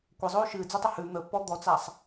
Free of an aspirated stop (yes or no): yes